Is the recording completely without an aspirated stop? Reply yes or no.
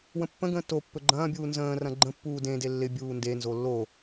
yes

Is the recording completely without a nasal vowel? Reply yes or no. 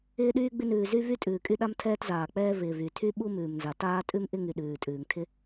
yes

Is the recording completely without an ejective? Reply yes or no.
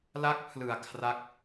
yes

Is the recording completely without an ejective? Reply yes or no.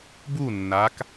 yes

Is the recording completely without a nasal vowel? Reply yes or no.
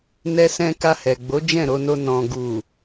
no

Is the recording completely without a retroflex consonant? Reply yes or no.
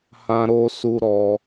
yes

